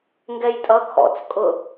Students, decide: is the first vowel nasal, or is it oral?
oral